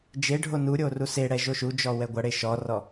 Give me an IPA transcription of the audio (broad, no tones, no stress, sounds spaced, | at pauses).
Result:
d͡ʒ e ɖʱ o n u ɾʲ o r u s e ɽ ɛ ʒ o ʃ u d͡ʒ ɔ w ɛ ɡʷ ɐ ɽ e ʃ ɔ r ɔ